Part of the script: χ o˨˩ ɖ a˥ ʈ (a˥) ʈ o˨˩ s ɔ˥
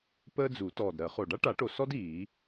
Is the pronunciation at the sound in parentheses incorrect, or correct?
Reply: incorrect: a˨˩˦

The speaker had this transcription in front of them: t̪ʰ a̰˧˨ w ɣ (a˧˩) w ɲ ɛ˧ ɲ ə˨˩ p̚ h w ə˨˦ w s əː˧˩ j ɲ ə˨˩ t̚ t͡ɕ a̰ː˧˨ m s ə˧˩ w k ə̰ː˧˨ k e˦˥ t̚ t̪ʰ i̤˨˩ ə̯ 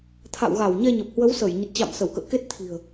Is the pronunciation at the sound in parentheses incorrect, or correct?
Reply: correct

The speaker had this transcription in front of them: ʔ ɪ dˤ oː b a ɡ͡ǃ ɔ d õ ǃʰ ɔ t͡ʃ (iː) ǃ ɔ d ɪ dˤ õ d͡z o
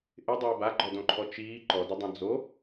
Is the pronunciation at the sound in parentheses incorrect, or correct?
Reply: correct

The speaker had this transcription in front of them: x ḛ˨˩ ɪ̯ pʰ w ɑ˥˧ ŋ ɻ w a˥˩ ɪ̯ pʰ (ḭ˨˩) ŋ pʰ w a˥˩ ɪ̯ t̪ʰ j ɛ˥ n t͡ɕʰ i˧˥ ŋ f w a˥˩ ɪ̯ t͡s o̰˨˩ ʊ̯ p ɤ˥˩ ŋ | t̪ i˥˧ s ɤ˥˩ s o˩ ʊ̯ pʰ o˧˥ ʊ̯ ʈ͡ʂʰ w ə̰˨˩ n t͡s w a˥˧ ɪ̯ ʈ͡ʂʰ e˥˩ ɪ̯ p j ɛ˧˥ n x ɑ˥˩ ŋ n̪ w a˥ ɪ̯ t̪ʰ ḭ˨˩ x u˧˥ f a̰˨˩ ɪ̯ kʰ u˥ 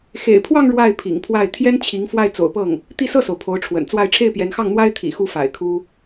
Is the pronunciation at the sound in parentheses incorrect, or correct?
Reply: correct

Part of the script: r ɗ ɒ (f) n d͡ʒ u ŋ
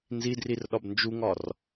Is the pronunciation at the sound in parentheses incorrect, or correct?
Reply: incorrect: b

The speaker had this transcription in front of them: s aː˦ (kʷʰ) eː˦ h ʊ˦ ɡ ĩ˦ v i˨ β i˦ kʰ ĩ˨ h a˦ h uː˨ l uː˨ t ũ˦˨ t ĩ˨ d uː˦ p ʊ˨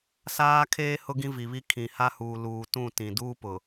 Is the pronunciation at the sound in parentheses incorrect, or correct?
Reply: incorrect: kʰ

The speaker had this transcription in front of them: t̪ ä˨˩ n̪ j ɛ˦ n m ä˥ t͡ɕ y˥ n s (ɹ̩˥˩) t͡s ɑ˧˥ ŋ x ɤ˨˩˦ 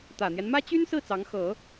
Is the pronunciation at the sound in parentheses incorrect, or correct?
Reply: correct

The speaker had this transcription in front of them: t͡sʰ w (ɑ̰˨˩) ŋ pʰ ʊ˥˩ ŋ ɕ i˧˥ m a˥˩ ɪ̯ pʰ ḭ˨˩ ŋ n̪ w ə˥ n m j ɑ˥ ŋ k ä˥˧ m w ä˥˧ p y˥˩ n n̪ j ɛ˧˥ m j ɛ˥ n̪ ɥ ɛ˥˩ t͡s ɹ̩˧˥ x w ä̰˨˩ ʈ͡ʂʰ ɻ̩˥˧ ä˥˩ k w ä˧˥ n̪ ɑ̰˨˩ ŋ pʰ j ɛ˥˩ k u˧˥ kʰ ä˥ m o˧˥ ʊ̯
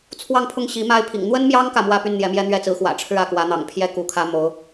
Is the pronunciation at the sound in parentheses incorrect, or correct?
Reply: incorrect: ɑ˥˧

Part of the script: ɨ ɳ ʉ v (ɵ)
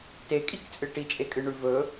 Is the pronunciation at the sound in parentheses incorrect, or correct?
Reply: correct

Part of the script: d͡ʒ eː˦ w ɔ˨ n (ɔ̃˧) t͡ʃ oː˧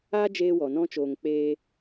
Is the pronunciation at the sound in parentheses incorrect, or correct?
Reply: incorrect: ɔ̃˦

